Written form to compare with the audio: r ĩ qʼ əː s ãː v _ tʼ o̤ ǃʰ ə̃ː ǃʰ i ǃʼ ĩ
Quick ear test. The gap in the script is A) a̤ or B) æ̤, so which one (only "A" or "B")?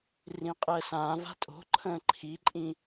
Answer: A